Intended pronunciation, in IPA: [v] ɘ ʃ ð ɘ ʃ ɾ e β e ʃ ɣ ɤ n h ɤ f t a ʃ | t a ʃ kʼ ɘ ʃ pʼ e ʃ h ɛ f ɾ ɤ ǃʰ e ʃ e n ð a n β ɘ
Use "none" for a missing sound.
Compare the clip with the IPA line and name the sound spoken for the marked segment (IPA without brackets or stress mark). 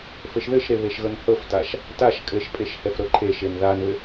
f